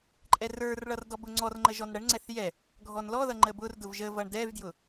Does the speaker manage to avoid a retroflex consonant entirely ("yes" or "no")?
no